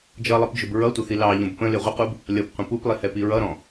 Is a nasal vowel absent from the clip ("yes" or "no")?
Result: no